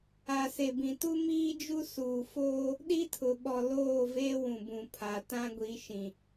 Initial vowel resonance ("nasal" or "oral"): oral